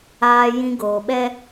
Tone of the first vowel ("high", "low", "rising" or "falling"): high